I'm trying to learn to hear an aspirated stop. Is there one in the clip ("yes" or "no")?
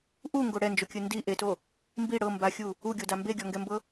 no